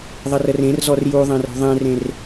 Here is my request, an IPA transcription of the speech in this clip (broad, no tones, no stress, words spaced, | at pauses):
ðˤərərẽrzɔr juðˤẽr o̤ðˤẽrẽr